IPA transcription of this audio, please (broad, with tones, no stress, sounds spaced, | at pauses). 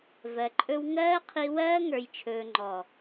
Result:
v ɜ˨ ǃʼ ɵ˧ w ŋ ɜː˦ qʰ i˧ w ɜː˦ ŋ ə˞˨ j t͡ʃʰ ɵː˨ ŋ͡ǃ ɔ˨